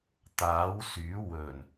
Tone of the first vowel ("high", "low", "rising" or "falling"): rising